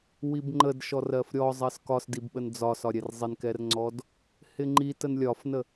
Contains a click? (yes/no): yes